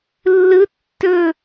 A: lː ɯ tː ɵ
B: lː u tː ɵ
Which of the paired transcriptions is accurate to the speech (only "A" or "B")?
A